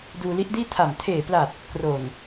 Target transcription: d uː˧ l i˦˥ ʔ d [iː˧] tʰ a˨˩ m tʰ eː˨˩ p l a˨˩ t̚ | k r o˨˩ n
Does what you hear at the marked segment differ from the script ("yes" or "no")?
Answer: yes